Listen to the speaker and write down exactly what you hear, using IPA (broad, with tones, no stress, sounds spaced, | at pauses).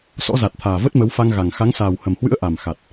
s ɔ̰˧˥ z a˨˩ t̚ t̪ʰ aː˨˩ v ə˦˥ t̚ m ə˨˦ w f a˧ ŋ ɣ a˨˩ ŋ x a˨˦ ŋ s aː˨˩ w h ə˨˩ m h w ɨ̰˧˥ ə̯ ʔ a˨˩ m x a˨˩ t̚